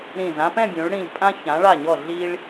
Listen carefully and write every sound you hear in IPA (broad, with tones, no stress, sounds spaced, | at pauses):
ɾ ĩ˧˩ z ã˥ p ɛ̃˥˧ bʲ ũ˩˧ ɭ ɽ ĩ˧˩ ʎ pʼ ã˥ ç ã˩˧ ɭ a˧˩ ɲ ɔ˧˩ ɮ i˧ ɭ